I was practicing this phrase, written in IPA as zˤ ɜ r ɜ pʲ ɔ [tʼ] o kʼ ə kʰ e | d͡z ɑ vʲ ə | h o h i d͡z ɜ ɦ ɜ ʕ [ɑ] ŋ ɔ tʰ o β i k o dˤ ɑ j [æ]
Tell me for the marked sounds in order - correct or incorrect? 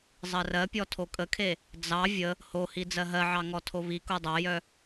incorrect, correct, incorrect

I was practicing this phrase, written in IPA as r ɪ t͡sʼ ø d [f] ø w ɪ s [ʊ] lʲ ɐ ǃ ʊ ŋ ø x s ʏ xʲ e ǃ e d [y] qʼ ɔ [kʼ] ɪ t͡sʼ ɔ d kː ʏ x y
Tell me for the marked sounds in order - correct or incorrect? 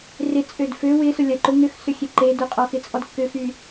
correct, correct, incorrect, incorrect

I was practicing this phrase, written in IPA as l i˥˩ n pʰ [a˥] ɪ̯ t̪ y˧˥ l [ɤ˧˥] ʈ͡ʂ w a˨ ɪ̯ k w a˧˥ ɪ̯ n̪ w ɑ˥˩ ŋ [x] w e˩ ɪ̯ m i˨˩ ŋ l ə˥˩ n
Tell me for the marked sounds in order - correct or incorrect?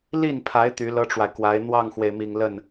incorrect, incorrect, correct

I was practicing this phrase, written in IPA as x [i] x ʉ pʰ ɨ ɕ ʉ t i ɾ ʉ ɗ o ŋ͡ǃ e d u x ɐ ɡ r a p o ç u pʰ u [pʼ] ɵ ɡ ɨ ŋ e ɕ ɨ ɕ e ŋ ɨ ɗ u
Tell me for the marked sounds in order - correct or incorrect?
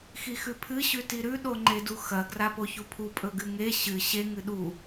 correct, correct

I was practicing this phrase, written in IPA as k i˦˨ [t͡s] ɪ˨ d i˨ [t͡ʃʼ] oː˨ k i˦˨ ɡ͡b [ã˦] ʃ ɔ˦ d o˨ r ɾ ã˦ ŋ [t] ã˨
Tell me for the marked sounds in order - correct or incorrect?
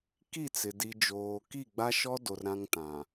correct, incorrect, incorrect, correct

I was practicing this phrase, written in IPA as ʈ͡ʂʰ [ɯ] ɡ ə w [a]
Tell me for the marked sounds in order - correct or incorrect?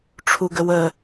incorrect, incorrect

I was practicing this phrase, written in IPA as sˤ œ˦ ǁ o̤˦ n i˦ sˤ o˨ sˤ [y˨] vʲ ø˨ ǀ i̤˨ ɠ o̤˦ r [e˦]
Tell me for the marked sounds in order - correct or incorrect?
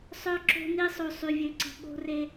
correct, correct

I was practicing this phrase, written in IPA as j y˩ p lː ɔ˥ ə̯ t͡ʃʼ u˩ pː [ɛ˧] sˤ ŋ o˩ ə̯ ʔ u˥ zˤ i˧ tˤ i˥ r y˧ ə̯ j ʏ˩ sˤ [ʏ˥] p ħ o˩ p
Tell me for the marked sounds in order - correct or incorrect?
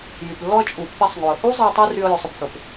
correct, incorrect

